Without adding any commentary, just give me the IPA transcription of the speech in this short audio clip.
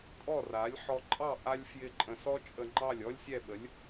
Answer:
tʼɔ˥˩ra˩˥lʲ ħɔ˧ǃʼɑ˥˩ ʔa˥lʲfjɪ˥˩ǃʼə̃˧ sɔ˥t͡ʃʼə˧ŋ͡ǃɑ˥˩lʲ ɔ˥lʲsʲɛ˥˩ɓə˩˥lʲ

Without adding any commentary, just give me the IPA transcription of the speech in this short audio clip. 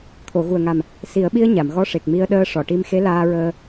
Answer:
t̪ʰo˨˩˨ɣu˨˩ə̯ŋa˨˩m | si˨˩˦ə̯ɓi˧ə̯ ɲa˨˩˨mɣɔ˧ʂe˨˩k̚ mi˧ə̯ɗəː˧ʂɔ˨˩˨ʈi˧m xe˧˥laː˧ɹəː˧

